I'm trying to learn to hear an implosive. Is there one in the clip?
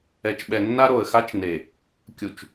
yes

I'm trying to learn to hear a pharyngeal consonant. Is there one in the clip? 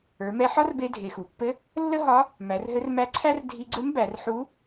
yes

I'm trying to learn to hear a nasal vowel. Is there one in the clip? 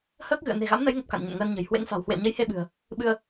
no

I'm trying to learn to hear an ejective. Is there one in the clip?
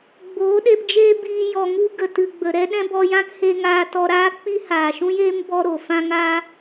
no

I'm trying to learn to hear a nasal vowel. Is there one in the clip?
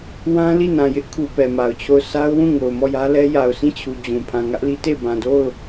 yes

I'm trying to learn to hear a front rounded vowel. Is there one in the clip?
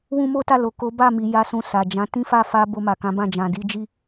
no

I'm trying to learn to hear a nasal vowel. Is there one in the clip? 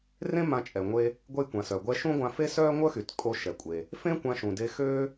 yes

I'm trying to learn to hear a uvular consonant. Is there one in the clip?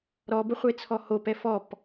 yes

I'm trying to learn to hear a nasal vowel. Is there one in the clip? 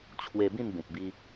yes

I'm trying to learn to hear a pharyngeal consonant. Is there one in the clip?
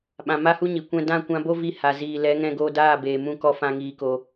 no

